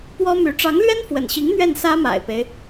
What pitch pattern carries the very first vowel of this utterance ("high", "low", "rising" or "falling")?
high